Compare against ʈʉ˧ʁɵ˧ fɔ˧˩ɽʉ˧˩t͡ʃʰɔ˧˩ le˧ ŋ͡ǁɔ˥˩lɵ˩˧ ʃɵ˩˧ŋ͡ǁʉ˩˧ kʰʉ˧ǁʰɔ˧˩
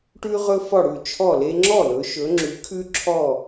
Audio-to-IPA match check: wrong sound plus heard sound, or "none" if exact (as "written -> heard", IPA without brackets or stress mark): none